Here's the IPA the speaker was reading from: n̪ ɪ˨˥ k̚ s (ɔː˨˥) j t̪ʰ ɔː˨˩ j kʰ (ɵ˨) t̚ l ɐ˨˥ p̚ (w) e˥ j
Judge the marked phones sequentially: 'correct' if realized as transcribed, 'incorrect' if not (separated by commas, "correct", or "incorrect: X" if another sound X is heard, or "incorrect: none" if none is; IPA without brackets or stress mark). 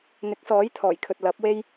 correct, correct, correct